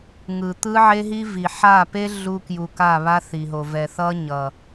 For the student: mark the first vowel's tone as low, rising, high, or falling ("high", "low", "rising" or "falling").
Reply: low